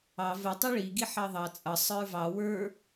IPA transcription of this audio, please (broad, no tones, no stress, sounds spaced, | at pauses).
ɑ v ə tˤ ɤ ɭ i ɡ i ħ ɑ ðˤ ɑ t͡sʼ ʌ sˤ ə˞ v ɑ w ə˞